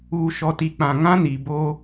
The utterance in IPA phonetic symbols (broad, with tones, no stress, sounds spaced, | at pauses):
uː˨ ʃ ɔ˨ t i˨ k͡p ã˨ ŋ ã˦ n i˨ b o˦